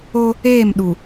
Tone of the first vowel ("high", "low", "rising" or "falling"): high